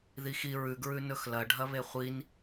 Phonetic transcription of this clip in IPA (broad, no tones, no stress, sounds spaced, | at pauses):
ð i x i ɹ ʉ ɡ ɹ ʉ n ɵ x l ɐ ɖʱ ɐ β e χʷ i n